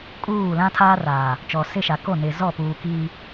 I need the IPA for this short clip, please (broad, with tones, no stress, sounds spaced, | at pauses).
kʼ uː˦˨ l ã˦ tʰ aː˦ r aː˨ | t͡ʃ ɔ˨ s ɪ˦˨ ʃ a˨ k o˦˨ n ɪ˨ z ɔ˦˨ p uː˨ k iː˦